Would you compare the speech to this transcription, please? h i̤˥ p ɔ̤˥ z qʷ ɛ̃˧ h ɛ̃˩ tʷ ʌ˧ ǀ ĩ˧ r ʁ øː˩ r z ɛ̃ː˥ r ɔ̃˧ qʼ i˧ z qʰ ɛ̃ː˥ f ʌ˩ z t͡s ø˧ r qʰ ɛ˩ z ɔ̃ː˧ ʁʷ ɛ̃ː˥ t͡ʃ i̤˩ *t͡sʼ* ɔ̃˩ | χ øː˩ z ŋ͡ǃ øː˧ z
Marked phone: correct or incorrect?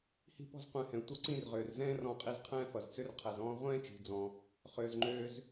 incorrect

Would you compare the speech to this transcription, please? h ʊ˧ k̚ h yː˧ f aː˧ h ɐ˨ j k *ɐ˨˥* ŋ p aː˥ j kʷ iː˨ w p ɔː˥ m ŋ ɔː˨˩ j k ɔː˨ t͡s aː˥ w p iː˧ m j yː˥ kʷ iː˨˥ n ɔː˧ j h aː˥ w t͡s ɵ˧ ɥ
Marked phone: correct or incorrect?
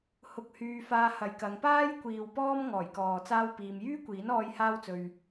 incorrect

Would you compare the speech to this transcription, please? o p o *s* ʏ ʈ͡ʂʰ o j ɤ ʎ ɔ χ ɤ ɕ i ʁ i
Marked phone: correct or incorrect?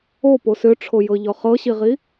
correct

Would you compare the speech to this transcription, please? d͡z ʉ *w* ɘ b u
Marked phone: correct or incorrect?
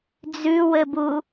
correct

